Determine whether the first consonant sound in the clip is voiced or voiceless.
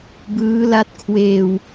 voiced